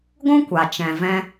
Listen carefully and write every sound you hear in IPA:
ɡʷ ũ˦ kʷ a˨ t͡ʃ ɛ̃˨ v ɛ̃˧

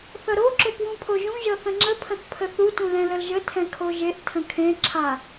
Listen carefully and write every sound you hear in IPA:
θ ʌ ɾ o ǁ o p w ũ pʰ o ʒ ũ ʒ ʌ θ ə̃ ŋ͡ǁ ə pʰ ə̃ θ pʰ ə θ u t ũ l ɛ̃ l ə l ʒ ə tʰ ɛ̃ kʰ o ʒ e ʔ tʰ ə̃ kʰ ẽ ǁʰ a

